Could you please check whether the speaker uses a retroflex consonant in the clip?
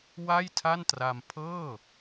no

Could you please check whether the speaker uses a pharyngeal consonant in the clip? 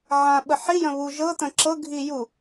yes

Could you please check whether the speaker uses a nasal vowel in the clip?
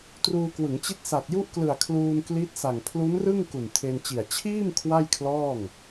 no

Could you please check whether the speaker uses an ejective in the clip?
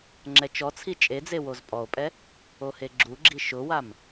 yes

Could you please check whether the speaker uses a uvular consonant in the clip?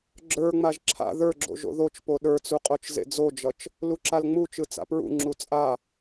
yes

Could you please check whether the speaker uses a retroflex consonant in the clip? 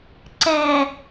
no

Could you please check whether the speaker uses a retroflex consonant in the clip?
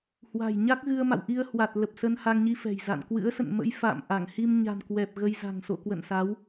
no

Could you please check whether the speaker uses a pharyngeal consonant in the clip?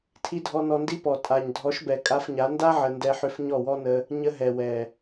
yes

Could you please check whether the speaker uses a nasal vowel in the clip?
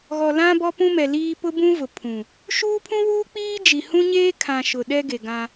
yes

